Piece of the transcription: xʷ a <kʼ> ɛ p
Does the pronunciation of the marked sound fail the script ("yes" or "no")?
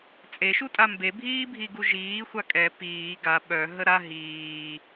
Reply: no